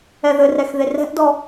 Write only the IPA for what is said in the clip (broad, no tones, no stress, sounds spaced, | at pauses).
ɛ ð ɘ r ɛ x ð e r ɛ̤ ʔ d ɔ